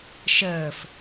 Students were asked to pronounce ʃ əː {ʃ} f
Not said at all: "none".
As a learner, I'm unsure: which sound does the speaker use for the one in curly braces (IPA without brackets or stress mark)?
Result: none